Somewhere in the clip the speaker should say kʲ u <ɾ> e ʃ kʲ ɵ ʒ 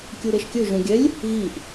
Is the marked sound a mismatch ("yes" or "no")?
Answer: no